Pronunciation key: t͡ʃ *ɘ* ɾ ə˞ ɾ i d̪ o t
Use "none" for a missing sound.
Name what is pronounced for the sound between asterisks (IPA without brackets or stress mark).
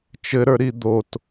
ɘ